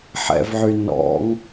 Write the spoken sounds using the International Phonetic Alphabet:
ħɛ̰vʕy nɔ̰ŋ

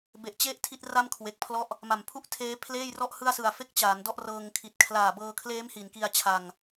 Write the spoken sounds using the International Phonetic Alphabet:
be˨˩ʔt͡ɕe˦˥ʔ tʰi˥˩t̚ra˥˩mkʰwe˨˩k̚pʰlɔ˥˩ʔ | ma˨˩mpʰu˥˩ʔtʰeː˦˥pʰleː˥˩j rɔ˥˩ʔhɯ˥˩a̯sɯ˨˩a̯fe˥˩k̚ t͡ɕaː˩˦n dɔ˥˩ʔrɤː˧ŋkʰi˨˩t̚ kʰlaː˨˩bɤː˧kʰleː˦˥m hi˩˦nki˧a̯t͡ɕʰa˧ŋ

